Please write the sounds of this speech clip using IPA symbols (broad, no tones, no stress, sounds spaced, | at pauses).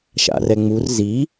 ʃ a̰ r ɛ ŋ͡m u r z i